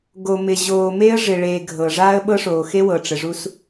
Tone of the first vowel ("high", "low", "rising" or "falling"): low